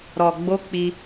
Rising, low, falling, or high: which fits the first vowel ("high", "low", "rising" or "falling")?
low